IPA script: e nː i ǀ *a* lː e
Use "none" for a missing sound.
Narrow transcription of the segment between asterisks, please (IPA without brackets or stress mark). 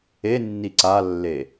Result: a